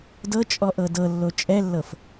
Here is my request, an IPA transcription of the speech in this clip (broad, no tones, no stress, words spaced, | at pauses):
dɤt͡ʃʼɔ ʔɤdɤlːo t͡ʃʼɛlːɤf